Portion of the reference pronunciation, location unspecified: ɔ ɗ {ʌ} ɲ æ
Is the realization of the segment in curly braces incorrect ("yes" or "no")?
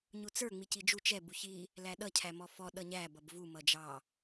no